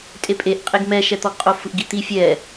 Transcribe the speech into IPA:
tʼ e pʼ e ʔ qʼ e ɡ m ɛ ʃ ɛ t̪ ɔ ɡ qʼ o f ɯ ʔ ɡ i t̪ i fʲ ɛ

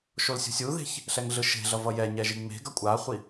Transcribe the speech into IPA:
ʃ o l sʲ ṳ sʲ u ð e̤ ç | ɬ ɛ ŋ ɮ ɯ ʃ e̤ ɮ ʌ v ʌ j ɛ ɲ ɛ ʒ i ŋ͡m e̤ ɡ ʌ kʷʼ a χʷ i

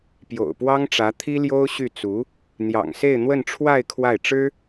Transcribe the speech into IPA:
p j o̰˨˩ ʊ̯ p w ɑ˥ ŋ ʈ͡ʂ ä˧˥ t̪ʰ i˥ l j o˥ ʊ̯ ɕ y˥˩ t͡s u˧˥ | n̪ j ɑ̰˨˩ ŋ s e˥˧ ɪ̯ n̪ w ə˥˧ n ʈ͡ʂʰ w a˥˧ ɪ̯ kʰ w a˥˩ ɪ̯ ʈ͡ʂ ɻ̩˥

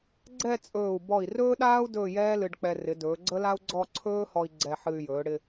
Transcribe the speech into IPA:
ɡ͡ǀ ɛ˥˧ t͡sʼ ɵː˧˩ u̯ b ɔ˧˩ i̯ r ɵː˥ ɗ aː˥ u̯ d ɵː˥˧ j ɛː˥ l ɨ˧ ɖ k͡p ɛ˧ r ɪ˩˧ d ɵː˩˧ ɡ͡ǀ ə˥ l a˥ u̯ ɡ͡ǀ ɔ˥˧ ǀʰ ɵː˥ h ɔ˧ i̯ ɡ͡ǀ ɛ˧ ħ ɨ˧ y̯ j ɵː˩˧ ɽ ɪ˧

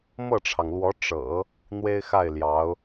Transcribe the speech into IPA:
m ɤ˥˩ ʈ͡ʂʰ ɑ˩ ŋ l w ɔ˧˥ ʈ͡ʂ ɤ̰˨˩˦ | n̪ w e˥ ɪ̯ x a˥˩ ɪ̯ l j ɑ˧˥ ʊ̯

